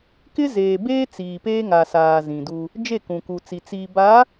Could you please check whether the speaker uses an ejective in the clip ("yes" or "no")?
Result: no